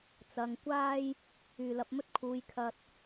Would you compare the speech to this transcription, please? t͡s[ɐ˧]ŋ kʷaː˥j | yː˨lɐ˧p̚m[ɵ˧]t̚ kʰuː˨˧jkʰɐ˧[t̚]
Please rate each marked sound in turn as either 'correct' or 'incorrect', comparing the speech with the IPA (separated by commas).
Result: correct, incorrect, correct